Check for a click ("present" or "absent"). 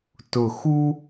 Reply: absent